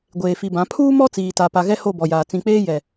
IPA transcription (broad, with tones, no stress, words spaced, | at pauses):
ɡʷeː˨fi˨bã˨˦ pʰuː˦mɔ˦ t͡siː˨ta˨pa˨ɣɛ˦ ho˦˨bɔ˨jaː˨ t͡sĩ˨k͡peː˦ jɛ˨